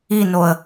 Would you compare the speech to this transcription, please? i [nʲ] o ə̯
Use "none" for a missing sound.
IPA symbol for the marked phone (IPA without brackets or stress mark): n